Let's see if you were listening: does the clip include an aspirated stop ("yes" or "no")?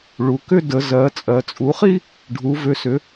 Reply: no